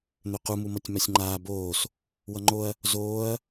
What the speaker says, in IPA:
n̪øqumu mʌtʲmasʲŋ͡ǃaː boːs | wʌŋ͡ǃoɐ̯ | zoːɐ̯

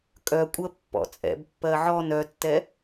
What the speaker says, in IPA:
kʼœkʷʼɜ pːɔ̰t͡sʼɛ̰bpːɜ ʕɔn œtːɛ

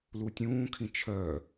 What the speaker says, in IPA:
lutʲũːkʰĩ t͡ʃʰœ

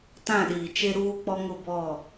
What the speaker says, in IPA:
tã˦˨ɗiː˨t͡ʃe˦ ɾuː˦k͡pɔ˦ŋʊ˦˨ bɔ˦˨

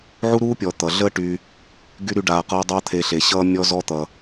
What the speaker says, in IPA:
ʕu˥ɾuː˥pʲɔ˨ t̪ʌ˩ɮə˦ʈy˨ | ɡy˥ɾy˦ɖaː˨qʌː˦ dˤʌː˦t̪ʰe˨ ɬe˩ɕʌː˦ mʲɔ˦zɔ˦t̪ʌ˩

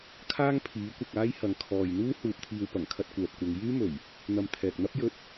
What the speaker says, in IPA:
kʰaː˥ŋpʰiː˨˥ kʷɐ˧k̚aː˥jhɐ˨˧ŋ kʰɔː˨jn̪uː˥ huː˧p̚t̪ʰiː˧w pɐ˨˩ŋkʰɐ˧t̚ kʷɛː˨p̚kʷɐ˨˧ŋ jyː˥mɵ˨˩ɥ | n̪ɐ˨m t̪ʰɛː˨k̚n̪ɐ˥p̚ jɵ˧t̚

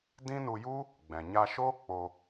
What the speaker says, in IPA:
dĩ˦nu˧ju˦ | ɡ͡bɛ̃˨ɲa˧ʃoː˦ k͡po˧

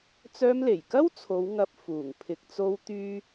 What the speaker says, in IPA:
t͡sœː˧mle˨˩jkɐ˥wt͡sʰo˨˧w ŋɐ˧p̚fuː˨˩ŋ pʰɪ˨k̚t͡so˧w t̪yː˥

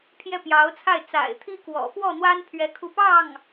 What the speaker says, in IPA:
pʰjɛ˥˩pjɑ˧˥ʊ̯t͡sʰa˥˩ɪ̯ t͡sa̰˨˩ɪ̯t̪ʰi˥kwɔ̰˨˩ fwɔ˥˩n̪wa˥npʰɥɛ˧˥ kʰu˥˧ pɑ˥˩ŋ

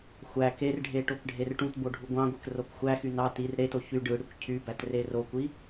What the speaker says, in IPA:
xʷæ kerɖʱe ʈokɖʱerʈũtbo ɖʱuɡʷɑ̃ɡʷek rokxʷæxy nɑ tir ɾeto çy ɖɯɽikʷ cʰybæt rerokʷi

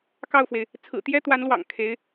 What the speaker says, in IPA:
kɑ˥˩ʊ̯fwe˩ɪ̯ | t͡sʰɹ̩˨˩t̪jɛ˥t̪wa˧˥nlwɑ̰˨˩ŋ kʰe˧˥ɪ̯

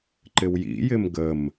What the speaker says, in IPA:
ǃɪwjḭjɪm ɡəm

